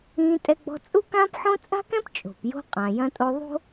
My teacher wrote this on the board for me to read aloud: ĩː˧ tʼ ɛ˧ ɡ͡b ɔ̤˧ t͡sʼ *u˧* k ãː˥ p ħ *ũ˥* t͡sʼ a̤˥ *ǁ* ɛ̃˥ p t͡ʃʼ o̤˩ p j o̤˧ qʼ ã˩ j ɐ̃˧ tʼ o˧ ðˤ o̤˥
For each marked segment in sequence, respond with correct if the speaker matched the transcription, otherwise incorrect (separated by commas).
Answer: incorrect, incorrect, incorrect